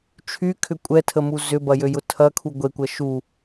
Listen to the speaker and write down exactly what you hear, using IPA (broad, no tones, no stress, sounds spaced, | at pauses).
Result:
t͡ʃʰ y kʰ ʏ kʷʼ ɛ tʰ ə m u z ʏ b ɐ j ø j ʊ tʰ ɐ kʰ u ɡʷ e kʷ ɐ ʃ u